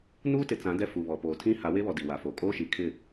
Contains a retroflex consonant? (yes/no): no